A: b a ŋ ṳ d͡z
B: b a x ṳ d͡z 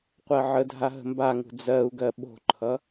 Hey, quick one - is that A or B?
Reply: A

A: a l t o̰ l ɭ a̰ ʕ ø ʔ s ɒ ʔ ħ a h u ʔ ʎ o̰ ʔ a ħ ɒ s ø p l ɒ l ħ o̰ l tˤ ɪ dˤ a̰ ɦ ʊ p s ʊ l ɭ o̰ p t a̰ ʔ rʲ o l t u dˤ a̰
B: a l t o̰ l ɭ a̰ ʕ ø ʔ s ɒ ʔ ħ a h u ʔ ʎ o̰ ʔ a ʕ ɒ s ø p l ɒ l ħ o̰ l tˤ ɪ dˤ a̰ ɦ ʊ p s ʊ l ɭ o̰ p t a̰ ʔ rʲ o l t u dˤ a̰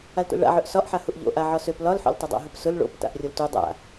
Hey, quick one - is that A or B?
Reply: B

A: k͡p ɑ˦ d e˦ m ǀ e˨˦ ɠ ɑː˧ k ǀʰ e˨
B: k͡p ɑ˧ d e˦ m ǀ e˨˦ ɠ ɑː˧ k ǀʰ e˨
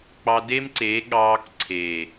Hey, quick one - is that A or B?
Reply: B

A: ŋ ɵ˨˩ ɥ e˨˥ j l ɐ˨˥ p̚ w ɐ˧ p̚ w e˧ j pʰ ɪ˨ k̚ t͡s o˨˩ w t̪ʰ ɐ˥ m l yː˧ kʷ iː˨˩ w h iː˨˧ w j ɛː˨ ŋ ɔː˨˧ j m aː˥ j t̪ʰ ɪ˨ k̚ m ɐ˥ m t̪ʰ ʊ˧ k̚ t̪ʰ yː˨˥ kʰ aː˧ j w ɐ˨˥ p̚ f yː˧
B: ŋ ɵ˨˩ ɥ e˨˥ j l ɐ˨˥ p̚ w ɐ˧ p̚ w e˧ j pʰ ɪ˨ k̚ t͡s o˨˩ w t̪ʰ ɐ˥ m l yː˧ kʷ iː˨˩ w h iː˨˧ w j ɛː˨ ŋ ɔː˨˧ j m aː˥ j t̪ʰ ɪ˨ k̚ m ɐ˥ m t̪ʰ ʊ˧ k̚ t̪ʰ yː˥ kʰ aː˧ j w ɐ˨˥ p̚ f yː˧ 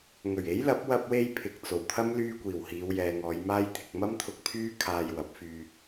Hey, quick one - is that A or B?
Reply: B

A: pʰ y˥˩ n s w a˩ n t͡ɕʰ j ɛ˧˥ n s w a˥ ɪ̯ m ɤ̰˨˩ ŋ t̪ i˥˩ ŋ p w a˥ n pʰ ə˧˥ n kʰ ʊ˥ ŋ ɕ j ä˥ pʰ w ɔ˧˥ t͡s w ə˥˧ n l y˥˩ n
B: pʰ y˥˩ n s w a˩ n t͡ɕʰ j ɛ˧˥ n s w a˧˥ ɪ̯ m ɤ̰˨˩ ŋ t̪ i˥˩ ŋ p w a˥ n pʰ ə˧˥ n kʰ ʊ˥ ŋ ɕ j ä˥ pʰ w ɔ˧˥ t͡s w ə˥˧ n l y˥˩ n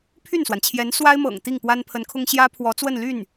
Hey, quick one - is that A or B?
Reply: A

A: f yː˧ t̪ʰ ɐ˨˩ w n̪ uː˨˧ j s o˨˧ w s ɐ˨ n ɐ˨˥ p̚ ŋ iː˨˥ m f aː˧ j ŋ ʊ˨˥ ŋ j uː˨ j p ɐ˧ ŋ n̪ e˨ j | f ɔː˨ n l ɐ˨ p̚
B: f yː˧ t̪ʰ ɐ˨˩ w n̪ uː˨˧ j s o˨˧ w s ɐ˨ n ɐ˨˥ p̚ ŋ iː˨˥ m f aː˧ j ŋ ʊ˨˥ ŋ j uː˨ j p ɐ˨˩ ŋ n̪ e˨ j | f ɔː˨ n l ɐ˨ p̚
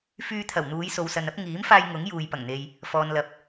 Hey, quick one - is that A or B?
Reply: B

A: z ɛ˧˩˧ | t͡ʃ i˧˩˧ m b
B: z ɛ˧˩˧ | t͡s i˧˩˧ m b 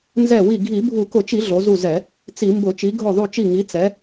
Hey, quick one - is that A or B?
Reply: B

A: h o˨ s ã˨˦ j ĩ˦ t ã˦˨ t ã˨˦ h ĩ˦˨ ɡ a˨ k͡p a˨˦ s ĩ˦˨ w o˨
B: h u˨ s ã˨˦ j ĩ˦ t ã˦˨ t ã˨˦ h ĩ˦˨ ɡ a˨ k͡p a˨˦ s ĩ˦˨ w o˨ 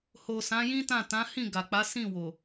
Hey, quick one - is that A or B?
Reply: A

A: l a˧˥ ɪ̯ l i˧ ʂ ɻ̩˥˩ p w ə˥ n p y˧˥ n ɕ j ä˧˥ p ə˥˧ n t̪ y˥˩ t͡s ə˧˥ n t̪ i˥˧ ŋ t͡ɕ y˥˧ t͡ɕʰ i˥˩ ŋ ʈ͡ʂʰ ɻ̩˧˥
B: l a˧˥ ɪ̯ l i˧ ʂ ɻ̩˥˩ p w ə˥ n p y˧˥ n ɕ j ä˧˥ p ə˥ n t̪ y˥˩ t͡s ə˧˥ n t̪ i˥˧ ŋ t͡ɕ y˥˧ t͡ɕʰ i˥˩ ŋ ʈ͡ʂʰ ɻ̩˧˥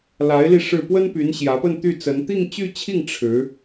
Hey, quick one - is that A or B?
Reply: A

